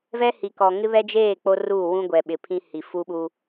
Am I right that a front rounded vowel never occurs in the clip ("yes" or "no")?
yes